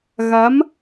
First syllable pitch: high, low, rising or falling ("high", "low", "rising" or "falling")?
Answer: rising